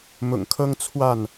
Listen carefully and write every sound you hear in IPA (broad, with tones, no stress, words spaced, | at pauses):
mʊ̰˨˩ŋkʰɤ˦ŋ t͡sʰwa˥˨n